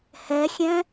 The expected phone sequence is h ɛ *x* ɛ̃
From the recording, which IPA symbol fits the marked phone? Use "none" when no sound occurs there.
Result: xʲ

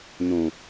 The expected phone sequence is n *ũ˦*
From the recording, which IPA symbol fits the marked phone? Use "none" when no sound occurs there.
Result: ũ˨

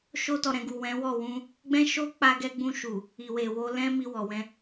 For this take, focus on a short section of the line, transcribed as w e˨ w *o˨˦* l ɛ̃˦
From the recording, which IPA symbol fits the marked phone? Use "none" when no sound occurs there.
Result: o˧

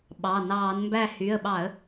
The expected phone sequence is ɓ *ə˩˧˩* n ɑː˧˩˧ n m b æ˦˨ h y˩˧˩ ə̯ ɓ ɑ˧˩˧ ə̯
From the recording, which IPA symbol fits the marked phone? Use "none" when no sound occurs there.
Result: ɑ˩˧˩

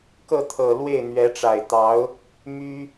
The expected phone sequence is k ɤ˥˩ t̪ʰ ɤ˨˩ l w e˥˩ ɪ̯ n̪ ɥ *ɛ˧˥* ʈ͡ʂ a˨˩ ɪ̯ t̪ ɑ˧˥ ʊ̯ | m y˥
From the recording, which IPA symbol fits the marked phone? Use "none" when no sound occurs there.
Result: ɛ˧˥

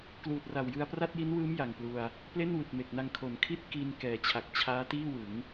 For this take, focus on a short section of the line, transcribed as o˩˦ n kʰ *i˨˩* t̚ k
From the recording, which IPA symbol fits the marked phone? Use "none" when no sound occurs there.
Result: i˥˩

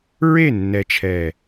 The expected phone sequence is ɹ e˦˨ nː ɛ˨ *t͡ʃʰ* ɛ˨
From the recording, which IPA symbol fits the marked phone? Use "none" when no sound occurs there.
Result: t͡ʃʰ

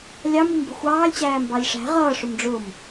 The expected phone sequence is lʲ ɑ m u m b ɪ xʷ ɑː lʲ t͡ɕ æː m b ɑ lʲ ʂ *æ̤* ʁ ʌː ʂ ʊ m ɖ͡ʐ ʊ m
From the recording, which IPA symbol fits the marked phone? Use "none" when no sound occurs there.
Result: æ̤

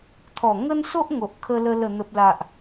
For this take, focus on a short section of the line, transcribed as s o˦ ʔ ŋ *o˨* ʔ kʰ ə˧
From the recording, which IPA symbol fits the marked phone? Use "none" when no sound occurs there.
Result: o˨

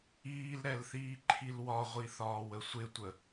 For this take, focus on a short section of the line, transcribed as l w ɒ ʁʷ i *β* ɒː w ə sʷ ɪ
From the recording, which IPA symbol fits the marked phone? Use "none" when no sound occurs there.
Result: θ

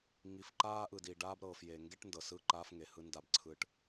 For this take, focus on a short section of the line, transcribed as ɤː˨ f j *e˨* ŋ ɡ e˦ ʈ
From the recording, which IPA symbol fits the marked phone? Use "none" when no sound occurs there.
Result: e˨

